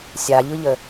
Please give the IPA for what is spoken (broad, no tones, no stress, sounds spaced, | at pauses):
sʲ a ʎ ɯ ʎ ə